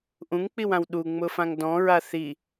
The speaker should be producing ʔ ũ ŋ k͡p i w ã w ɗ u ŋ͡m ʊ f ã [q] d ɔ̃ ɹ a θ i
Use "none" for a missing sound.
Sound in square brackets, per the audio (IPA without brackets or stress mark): ŋ